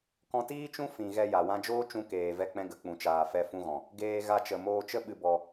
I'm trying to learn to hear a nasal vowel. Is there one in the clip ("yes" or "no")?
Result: yes